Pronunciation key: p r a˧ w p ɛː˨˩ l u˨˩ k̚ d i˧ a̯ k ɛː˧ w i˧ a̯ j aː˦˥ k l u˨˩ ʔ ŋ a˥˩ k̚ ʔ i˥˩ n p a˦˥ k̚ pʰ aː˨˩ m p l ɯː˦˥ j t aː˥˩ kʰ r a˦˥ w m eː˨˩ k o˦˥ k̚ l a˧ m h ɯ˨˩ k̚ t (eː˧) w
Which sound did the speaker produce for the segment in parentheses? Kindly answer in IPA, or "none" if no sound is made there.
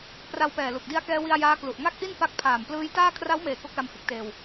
eː˧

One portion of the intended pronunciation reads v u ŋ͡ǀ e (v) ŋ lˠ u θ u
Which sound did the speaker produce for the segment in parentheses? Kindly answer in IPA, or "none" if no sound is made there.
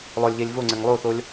none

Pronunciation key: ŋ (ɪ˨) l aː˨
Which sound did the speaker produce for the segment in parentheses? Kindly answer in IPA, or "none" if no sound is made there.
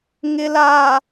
ɪ˨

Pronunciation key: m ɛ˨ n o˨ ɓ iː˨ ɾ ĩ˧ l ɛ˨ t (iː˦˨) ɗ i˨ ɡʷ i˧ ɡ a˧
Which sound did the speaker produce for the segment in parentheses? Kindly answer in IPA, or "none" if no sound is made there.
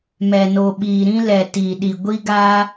iː˨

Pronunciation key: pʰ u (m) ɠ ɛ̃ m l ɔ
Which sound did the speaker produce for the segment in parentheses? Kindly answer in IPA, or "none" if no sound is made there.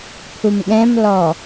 m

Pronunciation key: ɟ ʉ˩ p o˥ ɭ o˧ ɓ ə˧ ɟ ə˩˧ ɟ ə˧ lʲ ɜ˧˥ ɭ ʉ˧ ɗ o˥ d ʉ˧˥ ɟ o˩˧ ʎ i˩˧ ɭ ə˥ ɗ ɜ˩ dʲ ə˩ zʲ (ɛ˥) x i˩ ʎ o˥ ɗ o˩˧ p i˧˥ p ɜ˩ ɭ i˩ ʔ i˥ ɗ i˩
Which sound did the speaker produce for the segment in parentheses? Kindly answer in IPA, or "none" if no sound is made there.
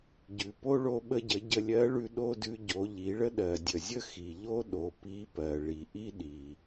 ə˥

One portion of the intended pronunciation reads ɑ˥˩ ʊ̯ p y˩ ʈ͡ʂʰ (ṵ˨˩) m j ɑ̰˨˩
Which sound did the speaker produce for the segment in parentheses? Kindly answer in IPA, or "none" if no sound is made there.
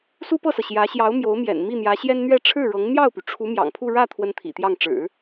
u˧˥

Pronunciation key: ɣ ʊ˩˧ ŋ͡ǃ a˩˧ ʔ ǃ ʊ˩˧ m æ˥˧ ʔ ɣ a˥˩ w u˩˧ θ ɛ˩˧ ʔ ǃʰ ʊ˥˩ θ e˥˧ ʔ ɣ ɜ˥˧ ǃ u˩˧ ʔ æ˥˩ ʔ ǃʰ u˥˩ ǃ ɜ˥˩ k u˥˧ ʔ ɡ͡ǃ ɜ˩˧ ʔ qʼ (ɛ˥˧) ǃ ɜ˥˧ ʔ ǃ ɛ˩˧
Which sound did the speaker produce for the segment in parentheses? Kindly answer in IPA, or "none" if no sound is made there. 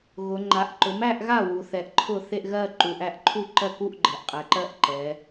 ɛ˩˧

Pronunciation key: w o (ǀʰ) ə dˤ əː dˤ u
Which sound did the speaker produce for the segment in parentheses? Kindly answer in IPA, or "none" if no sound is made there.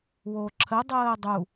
ǁʰ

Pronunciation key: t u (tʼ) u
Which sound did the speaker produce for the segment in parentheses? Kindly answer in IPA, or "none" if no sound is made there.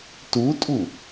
tʼ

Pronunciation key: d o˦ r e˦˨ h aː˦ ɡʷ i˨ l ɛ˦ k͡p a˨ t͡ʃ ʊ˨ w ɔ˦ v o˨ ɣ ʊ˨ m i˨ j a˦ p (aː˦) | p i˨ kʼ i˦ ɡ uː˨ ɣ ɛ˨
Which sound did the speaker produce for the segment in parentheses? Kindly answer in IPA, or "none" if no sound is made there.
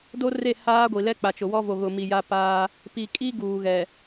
aː˦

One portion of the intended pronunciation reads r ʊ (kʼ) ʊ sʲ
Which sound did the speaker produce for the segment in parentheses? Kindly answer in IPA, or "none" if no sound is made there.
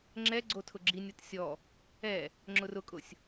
kʼ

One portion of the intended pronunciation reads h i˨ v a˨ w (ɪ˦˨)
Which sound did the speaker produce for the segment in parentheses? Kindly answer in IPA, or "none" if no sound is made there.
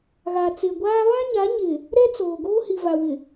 ɪ˨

